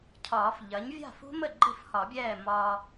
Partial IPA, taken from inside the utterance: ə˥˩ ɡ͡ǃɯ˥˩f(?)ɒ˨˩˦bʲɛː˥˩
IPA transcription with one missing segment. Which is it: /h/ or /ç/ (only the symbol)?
h